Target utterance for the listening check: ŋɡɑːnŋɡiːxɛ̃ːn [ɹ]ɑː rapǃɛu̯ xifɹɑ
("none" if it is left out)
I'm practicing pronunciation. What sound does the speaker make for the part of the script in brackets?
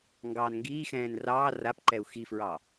r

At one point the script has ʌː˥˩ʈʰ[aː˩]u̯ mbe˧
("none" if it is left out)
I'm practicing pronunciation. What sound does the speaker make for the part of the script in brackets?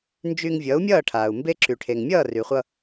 aː˩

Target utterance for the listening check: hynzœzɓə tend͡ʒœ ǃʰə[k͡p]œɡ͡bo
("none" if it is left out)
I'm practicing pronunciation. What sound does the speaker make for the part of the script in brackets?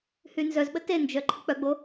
k͡p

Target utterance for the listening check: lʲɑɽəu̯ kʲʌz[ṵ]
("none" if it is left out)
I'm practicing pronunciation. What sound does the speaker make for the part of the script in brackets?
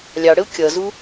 u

